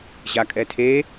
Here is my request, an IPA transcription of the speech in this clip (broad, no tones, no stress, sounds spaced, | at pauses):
ʑ a kʼ ɛ tʰ e